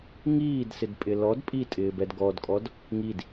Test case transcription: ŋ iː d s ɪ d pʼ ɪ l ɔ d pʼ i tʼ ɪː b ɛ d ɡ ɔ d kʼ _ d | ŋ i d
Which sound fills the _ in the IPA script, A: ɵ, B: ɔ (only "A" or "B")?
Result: B